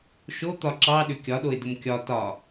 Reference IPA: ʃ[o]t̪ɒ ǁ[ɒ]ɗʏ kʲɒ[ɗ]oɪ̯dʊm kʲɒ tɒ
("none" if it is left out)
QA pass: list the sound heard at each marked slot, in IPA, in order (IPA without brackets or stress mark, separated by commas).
o, ɑ, ɗ